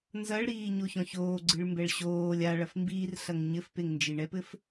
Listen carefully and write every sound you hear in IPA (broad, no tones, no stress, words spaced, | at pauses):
nzɐɭɾiː ɲoçɔ̃çoːɡ͡ǀɨɭ mbɛɭɕoːlʲ aɭɐf mbiːrɬɐŋ ɲɘfpeŋnd͡ʒi ɳɛpɘf